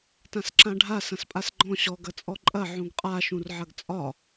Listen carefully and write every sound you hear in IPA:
tãsǁãɖʱa sɐ̃spʼasɡ͡ǃɔ̃ ɕɔɡ ɐt͡sʼɔǃʼɐ ʕũɡqʼa ʃũrʕɐɡt͡sʼɒ

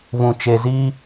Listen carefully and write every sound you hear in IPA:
βũ˨t͡ʃe˨ zi˦

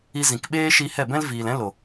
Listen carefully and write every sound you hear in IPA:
i˧zĩ˨k ɓeː˦ʃi˧hɛ˦˨bɛ̃˦l viː˨lɛ̃˦ lo˨

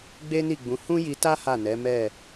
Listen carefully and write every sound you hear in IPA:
ɡ͡be˦ni˦˨ɡ͡bũ˨˦ hũ˦ji˧ta˦ ha˦˨nɛ˨˦mɛ˦˨

